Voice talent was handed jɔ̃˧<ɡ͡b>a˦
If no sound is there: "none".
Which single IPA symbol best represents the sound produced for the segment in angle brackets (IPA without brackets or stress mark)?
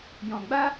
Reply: ɡ͡b